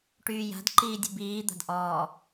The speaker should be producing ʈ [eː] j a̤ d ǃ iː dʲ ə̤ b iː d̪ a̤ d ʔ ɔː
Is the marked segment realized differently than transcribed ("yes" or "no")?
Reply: yes